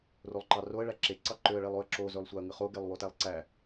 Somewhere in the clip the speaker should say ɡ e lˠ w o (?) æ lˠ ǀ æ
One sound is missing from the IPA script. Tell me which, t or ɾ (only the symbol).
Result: t